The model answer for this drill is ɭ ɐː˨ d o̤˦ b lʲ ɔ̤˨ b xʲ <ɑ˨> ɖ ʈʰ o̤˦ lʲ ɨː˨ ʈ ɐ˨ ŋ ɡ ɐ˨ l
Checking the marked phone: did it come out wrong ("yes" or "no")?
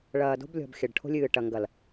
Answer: yes